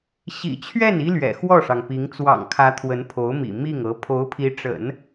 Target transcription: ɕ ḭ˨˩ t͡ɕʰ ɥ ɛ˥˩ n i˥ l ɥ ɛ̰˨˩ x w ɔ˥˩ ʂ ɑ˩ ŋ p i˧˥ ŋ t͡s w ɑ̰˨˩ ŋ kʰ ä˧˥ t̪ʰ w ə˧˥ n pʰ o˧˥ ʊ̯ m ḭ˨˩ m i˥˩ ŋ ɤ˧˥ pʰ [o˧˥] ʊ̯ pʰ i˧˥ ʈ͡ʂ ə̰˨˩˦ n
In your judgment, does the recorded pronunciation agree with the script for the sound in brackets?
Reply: yes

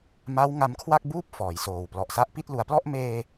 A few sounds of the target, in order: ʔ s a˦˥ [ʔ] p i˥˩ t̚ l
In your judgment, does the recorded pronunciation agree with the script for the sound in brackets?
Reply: yes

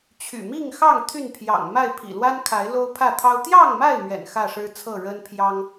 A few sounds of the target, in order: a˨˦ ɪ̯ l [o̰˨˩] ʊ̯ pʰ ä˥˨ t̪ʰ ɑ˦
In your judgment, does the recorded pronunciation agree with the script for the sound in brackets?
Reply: no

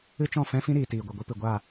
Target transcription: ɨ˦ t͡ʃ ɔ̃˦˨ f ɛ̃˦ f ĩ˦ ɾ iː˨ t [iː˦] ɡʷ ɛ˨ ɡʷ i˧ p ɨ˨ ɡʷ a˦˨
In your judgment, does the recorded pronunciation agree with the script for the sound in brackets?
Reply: no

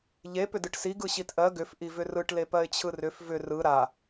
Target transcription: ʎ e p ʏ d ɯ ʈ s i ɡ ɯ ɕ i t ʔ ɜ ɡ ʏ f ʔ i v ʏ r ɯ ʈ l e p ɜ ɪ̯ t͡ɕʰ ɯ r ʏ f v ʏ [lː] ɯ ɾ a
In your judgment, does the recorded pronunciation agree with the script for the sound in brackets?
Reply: no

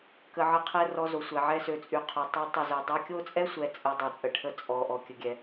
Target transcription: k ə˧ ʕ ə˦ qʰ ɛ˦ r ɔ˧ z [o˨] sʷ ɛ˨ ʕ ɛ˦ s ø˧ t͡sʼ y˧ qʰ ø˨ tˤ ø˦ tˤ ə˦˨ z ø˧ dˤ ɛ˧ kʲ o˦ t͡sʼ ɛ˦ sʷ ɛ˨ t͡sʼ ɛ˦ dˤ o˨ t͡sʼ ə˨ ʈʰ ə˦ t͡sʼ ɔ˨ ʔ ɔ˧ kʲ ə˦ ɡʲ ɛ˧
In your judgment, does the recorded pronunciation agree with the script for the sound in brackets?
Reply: yes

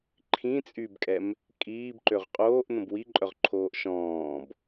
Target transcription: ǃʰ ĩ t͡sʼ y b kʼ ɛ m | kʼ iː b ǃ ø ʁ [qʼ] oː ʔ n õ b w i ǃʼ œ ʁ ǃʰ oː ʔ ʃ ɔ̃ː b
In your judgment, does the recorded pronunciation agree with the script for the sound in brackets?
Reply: yes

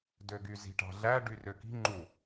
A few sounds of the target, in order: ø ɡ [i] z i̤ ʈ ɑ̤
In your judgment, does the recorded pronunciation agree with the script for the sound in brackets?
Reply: no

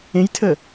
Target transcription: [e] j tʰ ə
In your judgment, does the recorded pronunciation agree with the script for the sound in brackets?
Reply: no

